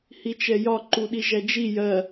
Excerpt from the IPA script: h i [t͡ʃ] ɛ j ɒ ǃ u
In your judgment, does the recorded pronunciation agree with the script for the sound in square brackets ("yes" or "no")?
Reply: yes